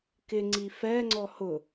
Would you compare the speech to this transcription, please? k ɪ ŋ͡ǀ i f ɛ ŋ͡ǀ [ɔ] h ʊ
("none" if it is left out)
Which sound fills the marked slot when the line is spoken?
ɔ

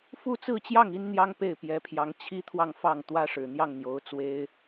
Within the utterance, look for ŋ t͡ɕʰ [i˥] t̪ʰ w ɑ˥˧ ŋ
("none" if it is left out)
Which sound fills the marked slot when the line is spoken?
i˥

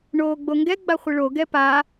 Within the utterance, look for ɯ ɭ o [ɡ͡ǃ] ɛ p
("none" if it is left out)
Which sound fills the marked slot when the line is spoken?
ɡ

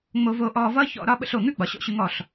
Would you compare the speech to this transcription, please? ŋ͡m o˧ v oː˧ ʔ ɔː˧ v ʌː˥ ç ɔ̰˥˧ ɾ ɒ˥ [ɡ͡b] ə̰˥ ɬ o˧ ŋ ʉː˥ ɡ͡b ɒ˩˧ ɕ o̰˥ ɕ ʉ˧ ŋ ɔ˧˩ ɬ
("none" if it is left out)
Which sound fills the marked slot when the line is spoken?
ɓ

